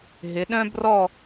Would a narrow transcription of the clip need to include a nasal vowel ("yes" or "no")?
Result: yes